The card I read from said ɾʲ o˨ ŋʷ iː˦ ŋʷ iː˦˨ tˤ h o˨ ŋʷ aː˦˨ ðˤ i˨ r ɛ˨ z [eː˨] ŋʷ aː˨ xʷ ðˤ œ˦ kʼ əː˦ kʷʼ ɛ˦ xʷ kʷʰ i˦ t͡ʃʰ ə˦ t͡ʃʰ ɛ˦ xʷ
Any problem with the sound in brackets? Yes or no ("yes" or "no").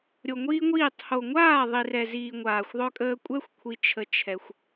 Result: yes